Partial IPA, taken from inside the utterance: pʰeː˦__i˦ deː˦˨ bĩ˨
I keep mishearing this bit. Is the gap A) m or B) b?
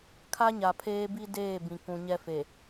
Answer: B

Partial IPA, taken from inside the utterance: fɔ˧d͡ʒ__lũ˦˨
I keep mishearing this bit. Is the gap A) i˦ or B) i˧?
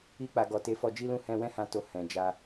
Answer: A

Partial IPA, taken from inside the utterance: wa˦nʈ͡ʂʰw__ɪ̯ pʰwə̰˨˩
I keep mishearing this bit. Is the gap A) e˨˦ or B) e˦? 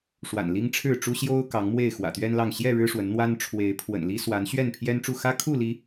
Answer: A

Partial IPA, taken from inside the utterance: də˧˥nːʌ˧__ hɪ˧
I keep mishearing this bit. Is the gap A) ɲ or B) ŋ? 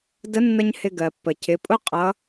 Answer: A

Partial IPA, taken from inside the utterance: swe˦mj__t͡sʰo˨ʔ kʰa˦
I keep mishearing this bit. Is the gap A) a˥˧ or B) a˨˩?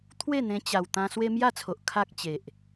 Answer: A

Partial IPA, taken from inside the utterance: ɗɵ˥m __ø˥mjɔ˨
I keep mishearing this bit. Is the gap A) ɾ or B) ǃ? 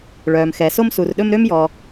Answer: A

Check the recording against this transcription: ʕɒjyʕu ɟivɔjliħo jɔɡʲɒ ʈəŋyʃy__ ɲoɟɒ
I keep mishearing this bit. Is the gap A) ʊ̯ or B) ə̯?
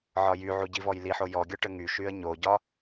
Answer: B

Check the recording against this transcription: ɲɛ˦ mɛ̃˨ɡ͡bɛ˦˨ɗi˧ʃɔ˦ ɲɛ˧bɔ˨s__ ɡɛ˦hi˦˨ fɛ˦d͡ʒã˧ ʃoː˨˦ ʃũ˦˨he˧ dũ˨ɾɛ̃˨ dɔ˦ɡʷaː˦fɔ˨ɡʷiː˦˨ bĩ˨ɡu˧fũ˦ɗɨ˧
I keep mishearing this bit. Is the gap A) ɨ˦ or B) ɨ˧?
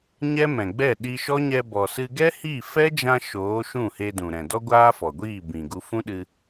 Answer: B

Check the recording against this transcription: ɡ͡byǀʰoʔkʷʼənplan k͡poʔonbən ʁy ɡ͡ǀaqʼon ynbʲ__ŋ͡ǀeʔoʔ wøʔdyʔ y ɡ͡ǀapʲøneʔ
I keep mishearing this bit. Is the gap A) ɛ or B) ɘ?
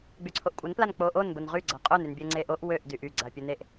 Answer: A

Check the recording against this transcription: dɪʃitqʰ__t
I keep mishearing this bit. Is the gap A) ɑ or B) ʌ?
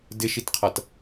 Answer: B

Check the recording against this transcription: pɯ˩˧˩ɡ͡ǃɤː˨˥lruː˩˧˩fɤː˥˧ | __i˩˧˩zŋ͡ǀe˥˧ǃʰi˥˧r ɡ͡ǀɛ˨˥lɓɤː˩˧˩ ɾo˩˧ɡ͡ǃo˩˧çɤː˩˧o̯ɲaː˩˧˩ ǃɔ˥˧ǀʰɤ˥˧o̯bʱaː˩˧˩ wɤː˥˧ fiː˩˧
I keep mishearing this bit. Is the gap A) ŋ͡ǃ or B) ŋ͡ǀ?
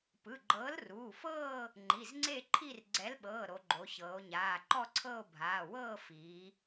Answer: A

